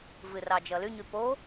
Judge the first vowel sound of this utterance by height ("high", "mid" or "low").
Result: high